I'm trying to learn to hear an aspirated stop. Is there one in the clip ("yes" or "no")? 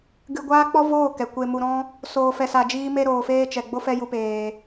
no